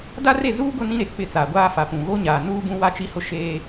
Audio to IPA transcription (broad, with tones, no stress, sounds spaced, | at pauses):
d a˦ r e˦˨ z uː˦ ɡ ʊ˦ n ĩ˦ ɾ e˨ k͡p ɪ˦˨ t͡s aː˨ ɡʷ aː˦ f a˨ p ũ˨ ɣ o˦ ɲ aː˨ n uː˦ b ũ˦ w a˦ t͡ʃ i˦ h ʊ˦ ʃ eː˦